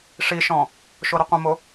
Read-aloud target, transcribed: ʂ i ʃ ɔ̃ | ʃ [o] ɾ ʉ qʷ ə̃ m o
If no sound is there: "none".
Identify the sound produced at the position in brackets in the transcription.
o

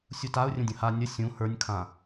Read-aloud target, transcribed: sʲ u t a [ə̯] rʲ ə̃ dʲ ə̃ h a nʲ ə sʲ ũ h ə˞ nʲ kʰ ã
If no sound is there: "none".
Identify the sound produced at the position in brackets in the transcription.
ʊ̯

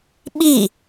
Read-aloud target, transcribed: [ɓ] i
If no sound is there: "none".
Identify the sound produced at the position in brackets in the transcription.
ɓ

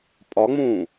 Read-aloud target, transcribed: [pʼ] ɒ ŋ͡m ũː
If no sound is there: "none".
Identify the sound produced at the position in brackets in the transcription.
pʼ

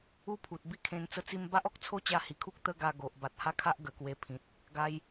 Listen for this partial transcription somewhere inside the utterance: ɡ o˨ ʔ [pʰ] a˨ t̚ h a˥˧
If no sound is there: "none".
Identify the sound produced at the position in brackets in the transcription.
b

